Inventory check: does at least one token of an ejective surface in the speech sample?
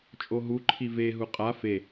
yes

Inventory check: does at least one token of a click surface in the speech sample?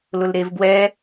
no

